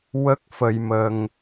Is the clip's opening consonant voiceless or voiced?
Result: voiced